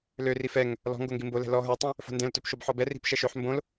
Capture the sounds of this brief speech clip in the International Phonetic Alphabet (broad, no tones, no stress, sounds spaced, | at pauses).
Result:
l ø r i f ɛ ŋ | l ɔ̤ ŋ ɡ o ŋ ɡ i m b o l ɛ̤ l ɔ ɦ ə˞ tˤ ɛ̃ | f o̤ n d ɛ̃ l t ø p ʃ o b ħ ɔ b ɛ r i̤ p ʃ ɛ ʃ ø ħ m b õ l